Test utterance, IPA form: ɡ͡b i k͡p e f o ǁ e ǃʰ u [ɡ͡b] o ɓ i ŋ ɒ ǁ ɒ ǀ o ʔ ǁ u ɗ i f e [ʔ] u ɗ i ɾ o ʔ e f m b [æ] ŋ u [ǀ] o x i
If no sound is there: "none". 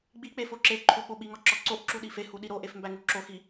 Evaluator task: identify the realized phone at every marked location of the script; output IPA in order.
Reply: ɓ, h, æ, ǁ

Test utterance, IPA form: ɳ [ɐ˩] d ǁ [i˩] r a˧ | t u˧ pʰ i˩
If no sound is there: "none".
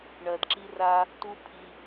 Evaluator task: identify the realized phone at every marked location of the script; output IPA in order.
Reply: ɐ˩, i˧

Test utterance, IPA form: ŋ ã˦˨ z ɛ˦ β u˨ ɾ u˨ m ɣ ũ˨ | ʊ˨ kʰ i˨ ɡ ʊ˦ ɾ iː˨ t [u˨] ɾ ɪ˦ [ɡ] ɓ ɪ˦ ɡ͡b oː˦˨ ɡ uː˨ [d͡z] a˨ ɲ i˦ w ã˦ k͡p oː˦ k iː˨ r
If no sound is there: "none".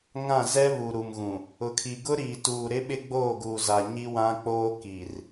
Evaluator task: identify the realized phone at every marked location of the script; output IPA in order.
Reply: uː˨, none, z

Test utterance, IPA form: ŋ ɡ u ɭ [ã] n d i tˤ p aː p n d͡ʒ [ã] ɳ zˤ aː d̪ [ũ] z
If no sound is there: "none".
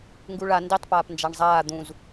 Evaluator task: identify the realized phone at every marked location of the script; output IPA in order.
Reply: a, a, ũ

